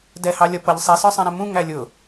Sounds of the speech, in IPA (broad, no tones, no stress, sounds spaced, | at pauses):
d ɛ h ɑ lʲ ʌ p ʌ ʎ sˤ i s ə˞ sˤ ɛ̃ ɾ ɛ̃ m ũ ŋ æ lʲ ʊ